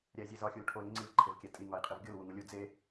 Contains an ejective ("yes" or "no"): yes